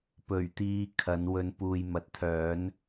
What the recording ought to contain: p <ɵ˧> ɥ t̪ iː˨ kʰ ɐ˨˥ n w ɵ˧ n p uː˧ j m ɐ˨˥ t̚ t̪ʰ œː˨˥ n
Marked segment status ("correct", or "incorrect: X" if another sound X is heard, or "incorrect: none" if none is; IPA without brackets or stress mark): incorrect: ɵ˨˩